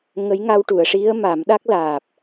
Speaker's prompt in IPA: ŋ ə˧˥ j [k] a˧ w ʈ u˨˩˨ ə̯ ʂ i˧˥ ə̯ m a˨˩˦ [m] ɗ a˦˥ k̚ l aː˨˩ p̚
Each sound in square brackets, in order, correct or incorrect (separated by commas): incorrect, correct